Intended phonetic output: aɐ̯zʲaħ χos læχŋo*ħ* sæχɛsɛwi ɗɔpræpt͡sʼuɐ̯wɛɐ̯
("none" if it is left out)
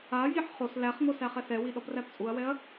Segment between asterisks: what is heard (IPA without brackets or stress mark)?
none